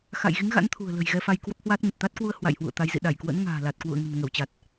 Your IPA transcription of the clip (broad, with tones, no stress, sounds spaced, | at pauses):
x a̰˧˨ j ɣ i˨˦ ŋ ɣ a̰˧˥ n t̪ʰ ṳ˨˩ ə̯ l ə̤˨˩ j ɣ ɛ˧ f a˧ j k w ə˦˥ p̚ h w a˦˥ t̚ ŋ ə˨˩ t̚ t̪ a˦˥ t̚ k w u˧ ə̯ h w a̰˧˨ j h w ṵ˧˨ ə̯ t̪ a˨˦ j z ḭ˧˨ ɗ a˧˩ j k w ə̰˧˥ n ŋ a̤ː˨˩ l a˨˩ t̚ k w ṵ˧˨ ə̯ ŋ ə̤˨˩ n ŋ ə˧˩ w t͡ɕ a˨˩ t̚